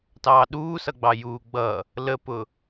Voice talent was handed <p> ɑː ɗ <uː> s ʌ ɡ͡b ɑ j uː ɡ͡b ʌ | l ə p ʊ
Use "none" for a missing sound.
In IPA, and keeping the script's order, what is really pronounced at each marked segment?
t, uː

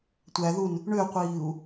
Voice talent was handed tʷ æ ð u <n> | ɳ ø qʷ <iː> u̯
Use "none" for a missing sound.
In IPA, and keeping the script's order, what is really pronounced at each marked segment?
n, iː

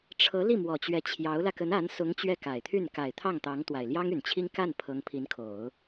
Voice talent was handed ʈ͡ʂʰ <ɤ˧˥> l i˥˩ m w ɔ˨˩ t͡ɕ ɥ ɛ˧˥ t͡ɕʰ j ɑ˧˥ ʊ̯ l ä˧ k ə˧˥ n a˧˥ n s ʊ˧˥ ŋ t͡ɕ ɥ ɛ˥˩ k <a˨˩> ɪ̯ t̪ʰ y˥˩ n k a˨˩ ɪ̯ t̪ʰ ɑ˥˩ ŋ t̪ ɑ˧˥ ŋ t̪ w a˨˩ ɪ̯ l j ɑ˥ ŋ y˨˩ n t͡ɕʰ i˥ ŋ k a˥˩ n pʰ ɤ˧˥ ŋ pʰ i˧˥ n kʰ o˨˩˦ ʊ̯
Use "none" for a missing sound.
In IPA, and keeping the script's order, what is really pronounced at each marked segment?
ɤ˧˥, a˨˩

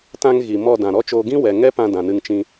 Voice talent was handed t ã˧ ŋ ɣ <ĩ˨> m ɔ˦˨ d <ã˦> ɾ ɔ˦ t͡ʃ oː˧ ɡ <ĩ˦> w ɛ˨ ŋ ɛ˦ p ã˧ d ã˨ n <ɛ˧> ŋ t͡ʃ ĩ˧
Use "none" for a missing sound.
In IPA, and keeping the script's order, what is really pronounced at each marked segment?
i˨, ã˨, ĩ˦, ɨ˧

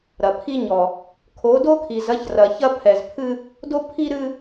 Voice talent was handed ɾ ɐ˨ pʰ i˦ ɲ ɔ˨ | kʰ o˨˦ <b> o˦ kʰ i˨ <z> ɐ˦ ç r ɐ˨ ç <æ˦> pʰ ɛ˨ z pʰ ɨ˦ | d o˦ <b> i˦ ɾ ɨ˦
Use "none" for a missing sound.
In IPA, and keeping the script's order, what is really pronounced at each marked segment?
d, z, ɐ˦, pʰ

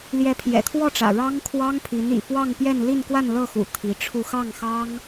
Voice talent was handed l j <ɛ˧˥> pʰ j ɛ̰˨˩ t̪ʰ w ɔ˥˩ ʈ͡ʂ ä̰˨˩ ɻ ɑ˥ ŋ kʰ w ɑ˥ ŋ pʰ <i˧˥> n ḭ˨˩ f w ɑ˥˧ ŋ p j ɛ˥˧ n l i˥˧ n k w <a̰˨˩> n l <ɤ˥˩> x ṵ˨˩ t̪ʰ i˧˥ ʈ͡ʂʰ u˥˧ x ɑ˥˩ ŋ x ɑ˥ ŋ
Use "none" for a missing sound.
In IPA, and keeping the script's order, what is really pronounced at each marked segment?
ɛ˧˥, i˧˥, a˥˧, ɤ˥˩

